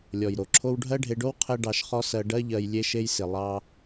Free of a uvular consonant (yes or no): no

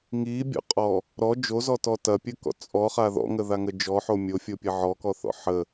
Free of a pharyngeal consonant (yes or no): no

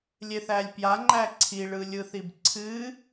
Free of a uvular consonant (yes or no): yes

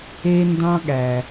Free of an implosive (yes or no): no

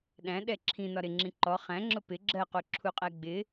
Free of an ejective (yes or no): no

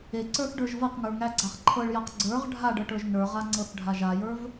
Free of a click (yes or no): no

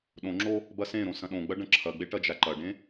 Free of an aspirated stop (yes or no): no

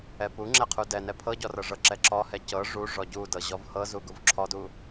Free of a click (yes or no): no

